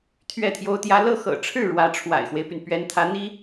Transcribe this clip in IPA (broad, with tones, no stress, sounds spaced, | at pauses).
t̪ʰ ɥ ɛ˥˩ t̪ʰ j o˥ ʊ̯ t̪ j ä˥ l ɤ˥˩ x ɤ̰˨˩ ʈ͡ʂʰ ɻ̩˥˩ ɻ w ä˧˥ ʈ͡ʂʰ w a̰˨˩ ɪ̯ x w e˦ ɪ̯ p y˩ n p ɥ ɛ˧˥ n t̪ʰ ä˧˥ n̪ i˥